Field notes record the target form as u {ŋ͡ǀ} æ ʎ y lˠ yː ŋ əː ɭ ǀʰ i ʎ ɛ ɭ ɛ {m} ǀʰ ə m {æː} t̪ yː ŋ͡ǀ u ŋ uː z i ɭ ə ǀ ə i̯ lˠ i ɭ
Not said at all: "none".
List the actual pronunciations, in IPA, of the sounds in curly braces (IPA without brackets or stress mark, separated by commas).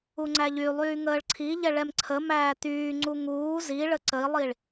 ŋ͡ǀ, m, æː